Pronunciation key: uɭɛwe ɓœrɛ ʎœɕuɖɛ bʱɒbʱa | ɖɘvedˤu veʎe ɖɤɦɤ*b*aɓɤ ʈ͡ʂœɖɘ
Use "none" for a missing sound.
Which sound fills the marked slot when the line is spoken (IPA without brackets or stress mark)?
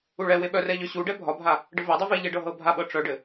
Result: bʱ